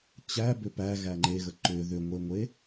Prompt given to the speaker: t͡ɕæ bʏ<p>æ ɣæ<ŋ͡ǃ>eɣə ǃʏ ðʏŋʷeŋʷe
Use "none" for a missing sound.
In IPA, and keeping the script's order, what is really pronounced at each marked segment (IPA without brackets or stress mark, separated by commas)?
p, ŋ͡ǃ